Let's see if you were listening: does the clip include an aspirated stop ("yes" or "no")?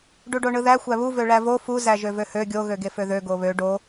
no